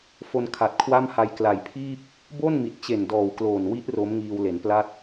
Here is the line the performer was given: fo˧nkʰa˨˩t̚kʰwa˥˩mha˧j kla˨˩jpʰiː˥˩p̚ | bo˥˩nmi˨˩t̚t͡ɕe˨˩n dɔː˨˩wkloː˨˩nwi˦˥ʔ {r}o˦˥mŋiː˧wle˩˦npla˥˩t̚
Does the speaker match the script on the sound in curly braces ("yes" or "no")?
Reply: yes